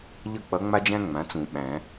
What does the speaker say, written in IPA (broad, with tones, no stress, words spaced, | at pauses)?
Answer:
ʎʌ˥˨k͡pʌ˧˥ŋ͡ma˥d͡ʒæ̃˥ ŋ͡mã˩˥t͡sũ˨˩˦ ɓæ̃˨˩˦